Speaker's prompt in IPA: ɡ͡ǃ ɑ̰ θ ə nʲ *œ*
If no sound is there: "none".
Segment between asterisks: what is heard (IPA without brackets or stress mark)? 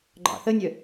œ